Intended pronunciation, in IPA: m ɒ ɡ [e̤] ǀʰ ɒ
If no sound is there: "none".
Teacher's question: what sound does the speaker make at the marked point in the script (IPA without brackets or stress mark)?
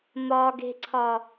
e̤